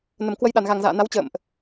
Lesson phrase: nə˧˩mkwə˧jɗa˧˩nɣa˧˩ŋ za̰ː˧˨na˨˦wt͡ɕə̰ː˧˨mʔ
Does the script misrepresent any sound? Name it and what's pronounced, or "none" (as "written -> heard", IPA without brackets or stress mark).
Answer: none